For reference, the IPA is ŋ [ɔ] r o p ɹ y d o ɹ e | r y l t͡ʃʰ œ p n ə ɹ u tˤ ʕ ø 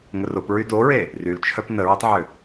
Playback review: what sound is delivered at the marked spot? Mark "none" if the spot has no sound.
ə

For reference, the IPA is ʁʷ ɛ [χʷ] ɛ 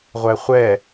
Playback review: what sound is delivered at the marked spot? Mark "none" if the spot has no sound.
χʷ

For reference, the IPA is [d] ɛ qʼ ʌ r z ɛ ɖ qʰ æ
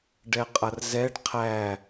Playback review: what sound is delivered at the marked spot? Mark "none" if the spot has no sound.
ɖ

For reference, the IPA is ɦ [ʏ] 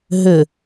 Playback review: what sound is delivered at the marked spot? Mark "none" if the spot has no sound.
ʏ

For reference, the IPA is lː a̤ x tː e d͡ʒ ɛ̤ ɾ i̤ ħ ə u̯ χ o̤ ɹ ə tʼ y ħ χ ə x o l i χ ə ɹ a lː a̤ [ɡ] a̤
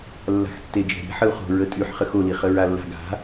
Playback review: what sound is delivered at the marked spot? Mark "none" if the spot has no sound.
ɡ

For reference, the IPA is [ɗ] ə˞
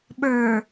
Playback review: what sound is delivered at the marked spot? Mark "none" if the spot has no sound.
ɓ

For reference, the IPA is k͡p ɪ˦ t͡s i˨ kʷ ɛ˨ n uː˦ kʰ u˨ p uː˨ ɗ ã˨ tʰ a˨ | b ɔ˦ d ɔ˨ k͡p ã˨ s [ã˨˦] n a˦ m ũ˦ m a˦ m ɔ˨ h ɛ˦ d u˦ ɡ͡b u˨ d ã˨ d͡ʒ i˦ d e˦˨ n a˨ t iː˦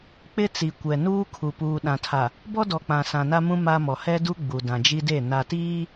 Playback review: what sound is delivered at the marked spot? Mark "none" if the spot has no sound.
ã˨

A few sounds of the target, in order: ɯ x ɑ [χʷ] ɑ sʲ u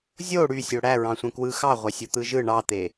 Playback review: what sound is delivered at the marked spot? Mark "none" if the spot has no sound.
ʁʷ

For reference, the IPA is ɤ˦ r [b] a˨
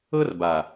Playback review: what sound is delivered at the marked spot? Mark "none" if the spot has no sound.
b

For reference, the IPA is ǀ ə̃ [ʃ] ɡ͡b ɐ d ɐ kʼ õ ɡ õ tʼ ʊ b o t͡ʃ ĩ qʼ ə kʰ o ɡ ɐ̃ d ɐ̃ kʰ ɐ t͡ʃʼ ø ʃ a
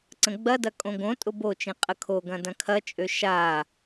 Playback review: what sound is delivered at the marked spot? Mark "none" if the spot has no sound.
none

